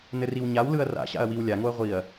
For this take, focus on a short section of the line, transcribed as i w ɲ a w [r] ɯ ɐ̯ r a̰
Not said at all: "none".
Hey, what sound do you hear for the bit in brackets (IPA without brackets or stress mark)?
l